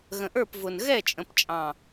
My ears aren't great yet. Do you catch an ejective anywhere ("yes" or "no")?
yes